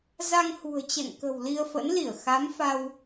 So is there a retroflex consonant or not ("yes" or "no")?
no